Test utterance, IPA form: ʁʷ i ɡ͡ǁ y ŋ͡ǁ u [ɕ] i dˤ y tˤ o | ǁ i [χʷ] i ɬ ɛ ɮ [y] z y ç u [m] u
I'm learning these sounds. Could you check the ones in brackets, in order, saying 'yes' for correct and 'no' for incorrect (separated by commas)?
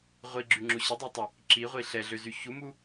yes, no, no, yes